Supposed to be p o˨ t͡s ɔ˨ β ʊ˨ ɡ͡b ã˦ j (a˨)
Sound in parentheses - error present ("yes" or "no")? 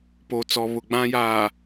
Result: yes